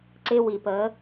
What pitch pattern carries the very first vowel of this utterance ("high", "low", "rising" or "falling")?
high